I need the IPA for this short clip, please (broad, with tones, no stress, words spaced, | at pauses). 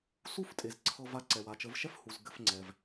su˦ftʼe˨z ǀʰɤ˧va˧ ǀɛ˨wa˨t͡ʃə˨˦vʃɛ˦f hu˨z ɡɘ˦fŋ͡ǀɛ˧v